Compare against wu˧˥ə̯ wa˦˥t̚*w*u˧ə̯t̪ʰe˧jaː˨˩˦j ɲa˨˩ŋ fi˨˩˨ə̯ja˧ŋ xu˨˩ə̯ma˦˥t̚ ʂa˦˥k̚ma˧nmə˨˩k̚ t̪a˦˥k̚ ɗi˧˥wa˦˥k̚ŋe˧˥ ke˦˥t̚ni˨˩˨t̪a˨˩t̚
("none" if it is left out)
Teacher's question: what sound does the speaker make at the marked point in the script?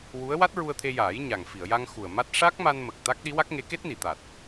ɹ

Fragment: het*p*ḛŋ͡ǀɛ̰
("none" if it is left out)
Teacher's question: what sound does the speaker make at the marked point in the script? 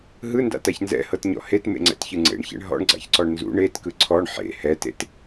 m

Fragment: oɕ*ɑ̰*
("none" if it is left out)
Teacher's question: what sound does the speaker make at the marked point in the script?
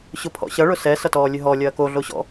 ɔ̰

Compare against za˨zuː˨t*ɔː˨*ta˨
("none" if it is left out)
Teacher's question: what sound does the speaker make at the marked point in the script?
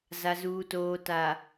oː˨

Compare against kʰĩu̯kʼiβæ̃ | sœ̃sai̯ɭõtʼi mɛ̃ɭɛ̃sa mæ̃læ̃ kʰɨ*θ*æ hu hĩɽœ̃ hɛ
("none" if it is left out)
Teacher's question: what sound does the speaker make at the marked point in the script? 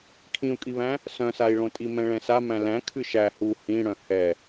ʃ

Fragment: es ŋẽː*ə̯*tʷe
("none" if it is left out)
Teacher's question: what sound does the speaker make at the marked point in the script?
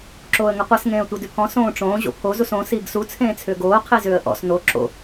ə̯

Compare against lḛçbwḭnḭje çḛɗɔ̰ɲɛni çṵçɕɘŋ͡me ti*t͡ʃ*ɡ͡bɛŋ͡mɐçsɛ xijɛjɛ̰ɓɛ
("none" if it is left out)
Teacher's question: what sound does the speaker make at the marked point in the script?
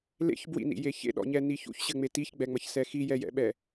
ç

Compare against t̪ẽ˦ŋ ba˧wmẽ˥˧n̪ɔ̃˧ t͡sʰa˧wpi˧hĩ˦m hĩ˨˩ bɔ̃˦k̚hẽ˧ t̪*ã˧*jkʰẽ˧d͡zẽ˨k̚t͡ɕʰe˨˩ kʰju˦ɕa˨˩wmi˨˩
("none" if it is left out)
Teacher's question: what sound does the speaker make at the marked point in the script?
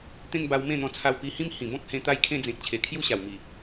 a˧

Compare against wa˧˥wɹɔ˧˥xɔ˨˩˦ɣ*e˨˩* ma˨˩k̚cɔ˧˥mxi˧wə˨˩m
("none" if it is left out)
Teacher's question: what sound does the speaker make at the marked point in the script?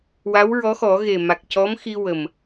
e˨˩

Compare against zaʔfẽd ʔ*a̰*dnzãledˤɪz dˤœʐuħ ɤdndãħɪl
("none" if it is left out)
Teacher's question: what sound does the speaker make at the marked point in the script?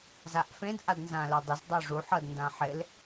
a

